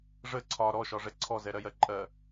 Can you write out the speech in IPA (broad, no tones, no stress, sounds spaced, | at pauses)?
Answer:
ʐ ə ǀʰ ɒ ɾ ɔ ʃ ɒ ʐ ɛ ǀʰ ɔ z ɛ ɾ ɜ j ɜ ǃʼ ɜ